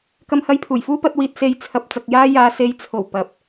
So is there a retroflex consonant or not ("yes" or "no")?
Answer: no